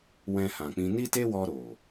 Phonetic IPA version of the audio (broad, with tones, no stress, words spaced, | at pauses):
wɛ̃˧hã˨k͡pĩ˧ ni˦te˦wɔ˧ɾo˨